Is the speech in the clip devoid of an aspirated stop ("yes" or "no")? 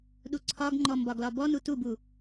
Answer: no